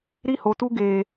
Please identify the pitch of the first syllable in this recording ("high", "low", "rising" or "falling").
high